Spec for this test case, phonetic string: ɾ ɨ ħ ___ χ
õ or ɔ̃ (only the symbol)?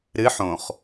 õ